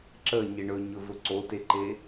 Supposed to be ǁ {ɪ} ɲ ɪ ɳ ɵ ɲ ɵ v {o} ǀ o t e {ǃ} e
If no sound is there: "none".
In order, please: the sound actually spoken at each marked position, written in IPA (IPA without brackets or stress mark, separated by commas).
ə, ɵ, ǃ